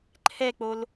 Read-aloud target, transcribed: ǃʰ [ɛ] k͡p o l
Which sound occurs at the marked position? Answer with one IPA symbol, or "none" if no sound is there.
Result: ɛ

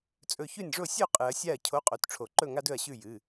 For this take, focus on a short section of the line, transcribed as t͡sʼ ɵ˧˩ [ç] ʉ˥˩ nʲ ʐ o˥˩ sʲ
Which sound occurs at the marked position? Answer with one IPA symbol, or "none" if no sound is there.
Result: ç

